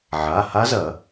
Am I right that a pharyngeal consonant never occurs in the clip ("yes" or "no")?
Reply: no